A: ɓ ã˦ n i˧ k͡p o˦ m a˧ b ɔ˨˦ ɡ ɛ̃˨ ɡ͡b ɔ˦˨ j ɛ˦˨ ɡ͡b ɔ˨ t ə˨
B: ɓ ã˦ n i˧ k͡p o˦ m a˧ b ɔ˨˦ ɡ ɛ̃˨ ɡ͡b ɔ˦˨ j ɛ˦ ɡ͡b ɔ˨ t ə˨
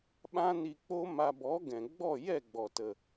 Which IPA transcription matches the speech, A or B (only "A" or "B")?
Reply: A